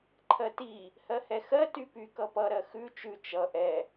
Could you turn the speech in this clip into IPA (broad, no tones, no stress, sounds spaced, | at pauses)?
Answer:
ǃʰ ɜ t i | h ɜ h ɛ x ɜ t y p y k ʌ p ʌ ɾ ɜ x ʉ t͡ʃ ʉ t͡ʃ ʌ ʔ ɛ